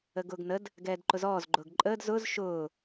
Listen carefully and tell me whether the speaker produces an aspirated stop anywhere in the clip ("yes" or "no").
no